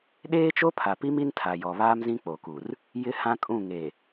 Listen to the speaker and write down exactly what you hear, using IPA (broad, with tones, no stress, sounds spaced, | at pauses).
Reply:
ɗ eː˦ t͡ʃ o˦ pʰ a˨ p i˦ m i˦ n tʰ a˨ j ɔ˨ β aː˦ m z ĩ˦ k͡p o˨ k u˨ r | j ɪ˦ h ã˦ kʼ ũ˦˨ ŋ e˨